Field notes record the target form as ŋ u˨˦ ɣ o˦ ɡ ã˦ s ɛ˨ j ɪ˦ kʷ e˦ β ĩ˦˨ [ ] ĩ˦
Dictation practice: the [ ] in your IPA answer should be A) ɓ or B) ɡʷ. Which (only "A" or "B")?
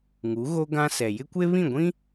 B